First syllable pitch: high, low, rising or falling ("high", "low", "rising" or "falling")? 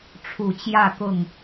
low